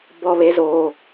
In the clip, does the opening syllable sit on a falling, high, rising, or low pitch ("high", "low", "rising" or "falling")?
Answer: low